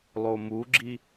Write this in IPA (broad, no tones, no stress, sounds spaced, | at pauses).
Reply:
lˠ o m u ɡ͡ǁ i